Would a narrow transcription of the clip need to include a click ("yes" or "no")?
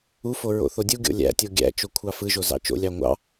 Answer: no